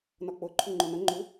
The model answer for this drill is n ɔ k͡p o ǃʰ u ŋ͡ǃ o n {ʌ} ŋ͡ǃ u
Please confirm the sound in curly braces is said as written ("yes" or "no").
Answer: yes